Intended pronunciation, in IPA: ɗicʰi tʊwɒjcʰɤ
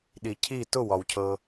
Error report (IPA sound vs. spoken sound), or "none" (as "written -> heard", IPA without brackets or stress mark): j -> w